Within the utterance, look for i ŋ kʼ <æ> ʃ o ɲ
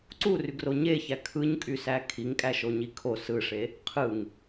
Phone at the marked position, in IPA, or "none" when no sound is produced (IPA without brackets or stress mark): æ